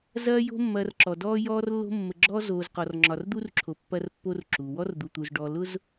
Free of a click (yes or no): no